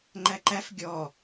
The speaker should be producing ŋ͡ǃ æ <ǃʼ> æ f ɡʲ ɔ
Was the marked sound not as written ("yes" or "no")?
yes